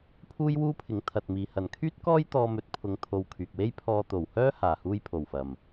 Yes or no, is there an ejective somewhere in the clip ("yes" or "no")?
no